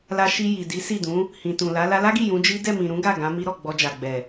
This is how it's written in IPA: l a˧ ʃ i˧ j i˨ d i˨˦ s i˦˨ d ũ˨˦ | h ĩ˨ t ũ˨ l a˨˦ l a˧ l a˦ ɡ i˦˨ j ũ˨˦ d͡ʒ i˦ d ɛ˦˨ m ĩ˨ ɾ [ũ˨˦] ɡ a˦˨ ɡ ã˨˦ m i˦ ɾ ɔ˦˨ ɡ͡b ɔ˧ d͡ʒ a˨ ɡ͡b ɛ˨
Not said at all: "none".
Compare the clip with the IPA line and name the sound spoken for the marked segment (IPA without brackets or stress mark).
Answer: ũ˨˦